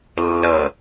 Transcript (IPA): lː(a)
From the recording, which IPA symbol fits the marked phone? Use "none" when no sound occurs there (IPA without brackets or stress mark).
ʌ